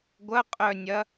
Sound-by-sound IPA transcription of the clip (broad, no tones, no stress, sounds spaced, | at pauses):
ɡʷ ɐ qʼ œ nʲ ɐ